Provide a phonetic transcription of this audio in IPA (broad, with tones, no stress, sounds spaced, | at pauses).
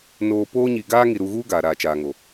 n oː˨ p oː˦ ɲ i˨ ɡ aː˦ ŋ i˨ ɾ u˨ ɣ uː˦ ɡ aː˨ ɾ aː˨ t͡ʃ aː˨ ŋ o˨